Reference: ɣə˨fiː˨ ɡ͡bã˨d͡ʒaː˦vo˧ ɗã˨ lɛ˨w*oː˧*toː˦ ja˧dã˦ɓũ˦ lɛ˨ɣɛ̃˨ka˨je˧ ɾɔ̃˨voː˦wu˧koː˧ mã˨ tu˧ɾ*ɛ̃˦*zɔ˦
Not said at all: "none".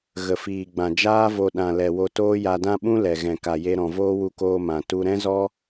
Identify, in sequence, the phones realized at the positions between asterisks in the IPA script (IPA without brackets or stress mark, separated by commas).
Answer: o˧, ɛ̃˦